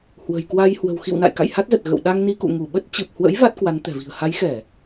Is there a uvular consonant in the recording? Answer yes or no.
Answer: no